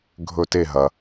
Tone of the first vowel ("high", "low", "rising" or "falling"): falling